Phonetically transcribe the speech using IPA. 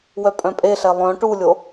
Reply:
wœpʼœ̃pʼeɬɛ lˠœ̃ ʈulʲo

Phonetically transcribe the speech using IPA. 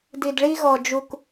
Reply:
di˨dɭi˦ɣɔ˨d͡ʒu˨k

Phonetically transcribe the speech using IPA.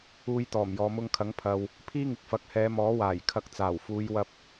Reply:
uː˧jt̪ɔː˨˩mjɔː˨ mʊ˧ŋkʰɐ˨˥ŋpʰɐ˨w | pʰiː˥ŋɪ˨k̚fɐ˨˥k̚ hɛː˨˧mɔː˨˥waː˨˩j kʰɐ˨k̚ t͡saː˨˩wfuː˨˧jwɐ˧p̚

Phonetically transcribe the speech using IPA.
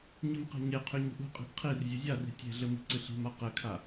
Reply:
ɲɨmqe̤ɲeqʰy ɲi̤ʔṳqʼi̤ʔ qʰir zʲuzʲari̤ tʲe̤ɮɘ mi̤ǀɨɬi̤ma qɘkʰa

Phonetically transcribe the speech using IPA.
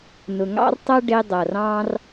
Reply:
nʊ˨ŋɑ̰˦rtˤʌ˦ ɖɪ˧ dˤʌ˨rɑ̃˦r

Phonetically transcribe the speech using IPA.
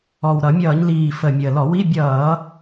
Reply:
ɔ˨˩wɾʌ˧˩˧mʲʌː˧˩˧ɲliː˨˩ fə˨˩mʲəː˨˩lɔ˧˩˧ wi˧˥˧ bʲʌː˧˩˧

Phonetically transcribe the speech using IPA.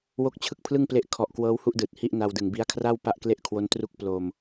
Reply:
wo˦˥k̚t͡ɕʰɯ˥˩k̚pʰlɯ˥˩ŋple˦˥ʔ kʰɔ˨˩ʔ kwɤː˦˥whu˥˩ʔdɯː˨˩t̚ hi˥˩ʔna˧wdɯ˨˩ŋbi˦˥a̯ kʰra˥˩w pa˥˩ʔkle˥˩ʔkʰwo˦˥ntru˥˩k̚ plo˧m

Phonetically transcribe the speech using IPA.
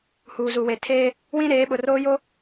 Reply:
huː˨zu˨we˨tʰeː˦ | wĩ˦ ɾeː˨˦ɓʊ˨roː˦jo˦

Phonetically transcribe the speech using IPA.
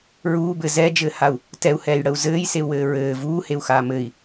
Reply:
ɹuː bɘ zɛd͡ʒɘːhau̯ | tɛu̯hɛːjɽəu̯ zɘːjseu̯wɘː ɹɘː vuːheu̯xaː mɘi̯

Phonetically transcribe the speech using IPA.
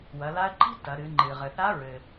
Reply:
wɐ˩˧la˧˥ə̯ǃi̤˥ tɐ˩˧ɾɨ˩˧ ŋ͡ǃɨ˩ʁɘ˩ θa˧˥ɹɘ˩

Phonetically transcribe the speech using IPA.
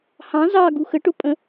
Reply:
hɑ̃ zɑ ɡuxə ʈʊpʼə̃

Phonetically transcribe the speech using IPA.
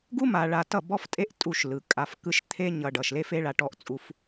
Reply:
ɡu˦ma˨ɭa˨ tʌ˦˨bɔ˦ftʼe˦ʔ tʼu˦˨ʃlɯ˨ kʼa˨f kɯ˧ʃ t̪ʰe˧ɲʌ˨ ɖʌ˨ʃle˦fe˦ɭa˧ ʈɔ˧ʔt͡sʼu˧f

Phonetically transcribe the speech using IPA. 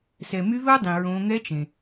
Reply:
sɛ˩my˧˥ ðo˥dˤĩ˩ ɹõ˩˧ŋɛ˧˥ t͡ʃẽ˩

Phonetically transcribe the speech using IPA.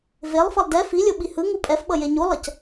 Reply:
velˠfʌlˠ dɛ filʲo ɓihɯŋu pʼɛfɓʌ jeɲulˠʌc

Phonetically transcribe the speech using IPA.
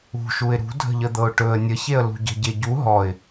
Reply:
ṳʃuɪ̯ ɾṳdʱə̤ʎəd̪ɤʊ̯ ʈɵə̯ nʲəçeə̯ lṳɟə̤ɟe ɟu ɦɔɪ̯

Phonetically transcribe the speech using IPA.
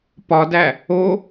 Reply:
pɒdæ | o

